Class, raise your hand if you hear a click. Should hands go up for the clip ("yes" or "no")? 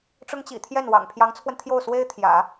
no